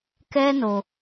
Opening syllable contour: high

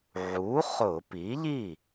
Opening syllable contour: rising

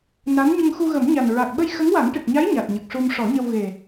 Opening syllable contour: rising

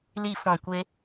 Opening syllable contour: low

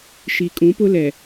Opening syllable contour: low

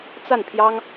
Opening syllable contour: falling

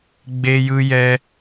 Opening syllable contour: high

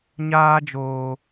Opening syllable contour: high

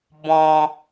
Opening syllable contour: high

